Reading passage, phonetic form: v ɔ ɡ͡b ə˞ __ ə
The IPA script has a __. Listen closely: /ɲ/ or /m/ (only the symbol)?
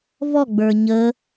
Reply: ɲ